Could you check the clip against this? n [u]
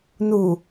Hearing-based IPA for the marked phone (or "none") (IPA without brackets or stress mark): u